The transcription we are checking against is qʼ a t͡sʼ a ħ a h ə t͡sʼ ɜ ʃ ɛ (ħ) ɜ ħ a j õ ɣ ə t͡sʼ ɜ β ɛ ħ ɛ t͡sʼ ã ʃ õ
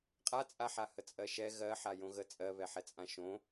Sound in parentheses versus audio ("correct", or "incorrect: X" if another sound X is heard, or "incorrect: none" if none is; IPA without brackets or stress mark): incorrect: ɣ